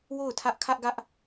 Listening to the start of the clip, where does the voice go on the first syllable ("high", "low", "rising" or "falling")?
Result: falling